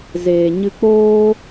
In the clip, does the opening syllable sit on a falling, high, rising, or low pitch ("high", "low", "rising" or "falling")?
low